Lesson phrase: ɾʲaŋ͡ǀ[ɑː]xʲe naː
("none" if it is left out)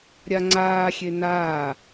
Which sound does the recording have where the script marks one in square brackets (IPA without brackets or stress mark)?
aː